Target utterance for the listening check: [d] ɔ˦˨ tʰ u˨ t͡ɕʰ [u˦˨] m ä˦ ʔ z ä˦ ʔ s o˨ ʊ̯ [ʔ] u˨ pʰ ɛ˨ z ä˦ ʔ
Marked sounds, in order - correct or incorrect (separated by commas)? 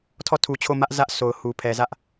incorrect, incorrect, incorrect